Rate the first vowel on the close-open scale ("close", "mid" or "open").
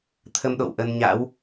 mid